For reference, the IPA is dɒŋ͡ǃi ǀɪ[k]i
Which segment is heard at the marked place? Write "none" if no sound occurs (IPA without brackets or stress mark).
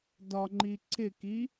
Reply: k